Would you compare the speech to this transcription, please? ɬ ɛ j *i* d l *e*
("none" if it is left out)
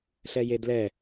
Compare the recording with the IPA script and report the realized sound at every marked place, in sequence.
e, ɛ

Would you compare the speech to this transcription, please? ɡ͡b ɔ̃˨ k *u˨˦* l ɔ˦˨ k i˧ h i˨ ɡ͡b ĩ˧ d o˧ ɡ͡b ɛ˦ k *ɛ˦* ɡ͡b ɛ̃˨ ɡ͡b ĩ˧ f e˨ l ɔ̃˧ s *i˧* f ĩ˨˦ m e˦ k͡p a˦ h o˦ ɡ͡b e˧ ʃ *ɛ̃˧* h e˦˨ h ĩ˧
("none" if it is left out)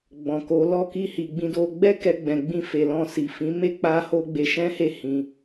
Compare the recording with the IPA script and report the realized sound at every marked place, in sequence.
o˨˦, ɛ˧, i˨, ɛ̃˦

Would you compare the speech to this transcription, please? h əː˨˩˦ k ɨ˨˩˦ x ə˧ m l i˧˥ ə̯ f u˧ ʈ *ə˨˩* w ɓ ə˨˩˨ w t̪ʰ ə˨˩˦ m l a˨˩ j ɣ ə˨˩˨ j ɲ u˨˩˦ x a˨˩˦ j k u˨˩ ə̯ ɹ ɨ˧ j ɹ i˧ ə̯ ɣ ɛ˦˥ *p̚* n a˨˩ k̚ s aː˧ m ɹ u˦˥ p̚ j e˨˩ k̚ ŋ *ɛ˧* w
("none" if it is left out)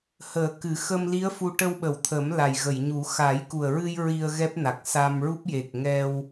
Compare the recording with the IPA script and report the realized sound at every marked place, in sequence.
ə˧, p̚, ɛ˧

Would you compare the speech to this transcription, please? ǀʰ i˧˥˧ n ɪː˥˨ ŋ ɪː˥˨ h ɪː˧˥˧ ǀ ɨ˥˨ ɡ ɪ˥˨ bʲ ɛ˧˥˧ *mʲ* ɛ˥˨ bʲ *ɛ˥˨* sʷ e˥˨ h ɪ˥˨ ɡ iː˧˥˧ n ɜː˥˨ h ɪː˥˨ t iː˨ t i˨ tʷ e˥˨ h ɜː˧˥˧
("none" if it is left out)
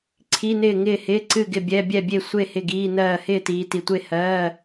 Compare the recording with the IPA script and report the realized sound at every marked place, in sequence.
bʲ, e˥˨

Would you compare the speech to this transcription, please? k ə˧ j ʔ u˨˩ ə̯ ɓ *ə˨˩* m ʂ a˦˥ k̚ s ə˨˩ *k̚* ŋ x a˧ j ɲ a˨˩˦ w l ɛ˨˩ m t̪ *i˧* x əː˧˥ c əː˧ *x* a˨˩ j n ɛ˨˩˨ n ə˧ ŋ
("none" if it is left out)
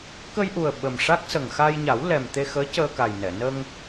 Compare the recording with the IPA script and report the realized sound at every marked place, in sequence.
ə˨˩, none, e˧, k

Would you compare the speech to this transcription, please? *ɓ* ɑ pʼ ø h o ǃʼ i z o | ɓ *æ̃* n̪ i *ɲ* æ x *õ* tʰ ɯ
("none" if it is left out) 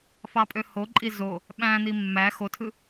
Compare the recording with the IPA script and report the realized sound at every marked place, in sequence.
f, æ̃, mː, o

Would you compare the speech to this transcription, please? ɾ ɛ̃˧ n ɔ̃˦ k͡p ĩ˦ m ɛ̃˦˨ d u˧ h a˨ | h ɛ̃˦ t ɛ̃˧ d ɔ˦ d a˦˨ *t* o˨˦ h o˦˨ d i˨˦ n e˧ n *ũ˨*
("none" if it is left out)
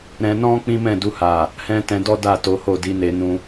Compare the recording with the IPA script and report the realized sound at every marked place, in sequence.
t, ũ˧

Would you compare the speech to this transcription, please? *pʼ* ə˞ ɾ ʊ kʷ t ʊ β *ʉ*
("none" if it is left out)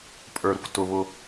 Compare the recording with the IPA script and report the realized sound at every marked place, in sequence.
pʼ, ʊ

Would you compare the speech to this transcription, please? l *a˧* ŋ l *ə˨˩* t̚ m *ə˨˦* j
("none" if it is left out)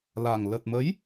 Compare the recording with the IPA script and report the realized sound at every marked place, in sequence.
a˨˩, ə˨˩, ə˨˦

